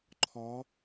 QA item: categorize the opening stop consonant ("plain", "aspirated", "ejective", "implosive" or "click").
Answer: click